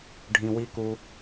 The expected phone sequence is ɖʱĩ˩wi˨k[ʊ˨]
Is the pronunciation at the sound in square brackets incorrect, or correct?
incorrect